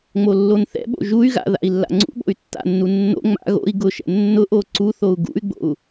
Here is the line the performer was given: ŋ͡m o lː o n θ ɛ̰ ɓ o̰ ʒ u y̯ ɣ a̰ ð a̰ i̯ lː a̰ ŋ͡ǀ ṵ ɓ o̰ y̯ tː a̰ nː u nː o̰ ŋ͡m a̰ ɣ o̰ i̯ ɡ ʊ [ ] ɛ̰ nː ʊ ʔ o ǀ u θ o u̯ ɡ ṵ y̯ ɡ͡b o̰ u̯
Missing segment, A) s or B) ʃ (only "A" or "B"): B